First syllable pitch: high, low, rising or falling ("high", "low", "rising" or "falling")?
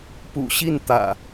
low